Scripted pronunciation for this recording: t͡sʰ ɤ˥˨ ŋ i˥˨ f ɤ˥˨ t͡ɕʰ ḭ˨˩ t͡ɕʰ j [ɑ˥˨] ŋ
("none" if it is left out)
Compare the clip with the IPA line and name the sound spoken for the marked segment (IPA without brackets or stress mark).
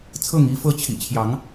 ɑ˨˦